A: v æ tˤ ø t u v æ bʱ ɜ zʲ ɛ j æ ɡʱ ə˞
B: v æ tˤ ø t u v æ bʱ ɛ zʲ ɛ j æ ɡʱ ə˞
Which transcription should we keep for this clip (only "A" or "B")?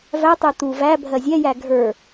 A